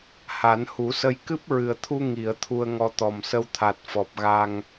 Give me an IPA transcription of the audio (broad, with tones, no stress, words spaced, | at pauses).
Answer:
ha˨˩˦nhu˨˩˦sə˧j kɨ˦˥p̚ɹɨ˨˩ə̯t̪ʰu˧ ŋi˨˩˨ə̯ t̪ʰu˧ə̯ŋɔ˧ t̪ɔ˨˩msə˧wt̪ʰa˨˩t̚ fɔ˨˩p̚ɣa˧ŋ